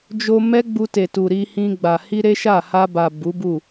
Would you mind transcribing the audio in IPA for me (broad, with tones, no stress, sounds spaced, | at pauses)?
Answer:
d͡ʒ o˧ m ɛ˦ ɡ͡b u˧ t e˨ t u˨ ɾ i˧ h ĩ˧ ɡ͡b a˨ h i˧ ɾ e˦ ʃ a˦˨ h a˧ b a˨ b u˨˦ b u˦˨